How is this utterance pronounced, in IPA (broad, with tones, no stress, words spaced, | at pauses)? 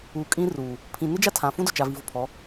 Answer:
uː˨kʼĩ˦ruː˨ | pʰĩ˨nɪ˦d͡ʒa˦ tʰã˨fũ˦dʊ˨ t͡ʃa˨vi˨vʊ˨pʰɔ˨˦